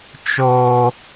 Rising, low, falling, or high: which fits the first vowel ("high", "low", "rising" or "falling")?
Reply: high